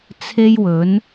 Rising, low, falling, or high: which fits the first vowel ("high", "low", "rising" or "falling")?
high